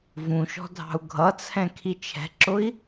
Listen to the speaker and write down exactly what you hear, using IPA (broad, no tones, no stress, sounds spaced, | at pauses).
v ũ ʃ ɔ̤ dʱ ɑ̤ u̯ ɡʱ ʌ t͡sʰ ɛ̃ kʰ i t͡ʃʰ ɛ̤ ǁ ʊ i̯